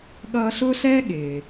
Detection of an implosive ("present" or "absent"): present